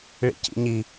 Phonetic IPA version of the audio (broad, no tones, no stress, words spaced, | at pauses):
ɭḭcḭɲi